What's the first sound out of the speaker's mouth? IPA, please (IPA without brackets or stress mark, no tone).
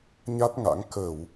ɲ